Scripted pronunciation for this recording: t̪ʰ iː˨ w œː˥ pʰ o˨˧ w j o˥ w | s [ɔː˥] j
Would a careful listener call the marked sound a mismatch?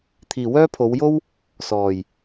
yes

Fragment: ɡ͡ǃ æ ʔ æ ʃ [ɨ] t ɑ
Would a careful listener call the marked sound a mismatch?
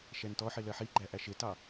yes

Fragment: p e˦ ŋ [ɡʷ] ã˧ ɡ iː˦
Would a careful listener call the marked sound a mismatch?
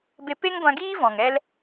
no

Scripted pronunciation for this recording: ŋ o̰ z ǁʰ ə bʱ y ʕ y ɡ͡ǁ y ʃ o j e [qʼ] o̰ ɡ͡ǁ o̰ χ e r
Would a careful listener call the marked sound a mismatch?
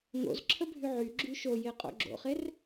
no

